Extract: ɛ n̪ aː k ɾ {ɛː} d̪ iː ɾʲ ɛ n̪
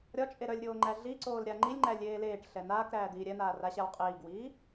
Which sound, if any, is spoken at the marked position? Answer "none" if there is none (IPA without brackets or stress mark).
æː